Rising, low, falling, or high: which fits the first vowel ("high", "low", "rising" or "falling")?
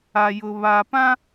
low